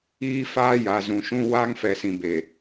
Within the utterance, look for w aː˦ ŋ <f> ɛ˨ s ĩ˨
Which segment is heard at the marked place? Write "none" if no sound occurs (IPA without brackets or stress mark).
f